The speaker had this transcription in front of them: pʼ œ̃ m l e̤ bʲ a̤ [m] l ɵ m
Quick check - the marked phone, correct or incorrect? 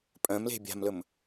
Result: correct